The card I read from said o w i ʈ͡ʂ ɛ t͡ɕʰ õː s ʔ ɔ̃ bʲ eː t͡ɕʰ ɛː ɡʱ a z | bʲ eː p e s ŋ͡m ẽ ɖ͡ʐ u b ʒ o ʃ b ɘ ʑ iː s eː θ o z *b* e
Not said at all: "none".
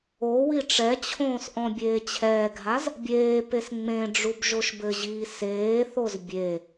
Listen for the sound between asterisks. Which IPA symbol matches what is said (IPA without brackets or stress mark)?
bʲ